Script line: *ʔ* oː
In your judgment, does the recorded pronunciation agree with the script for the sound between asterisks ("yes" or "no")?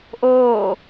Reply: yes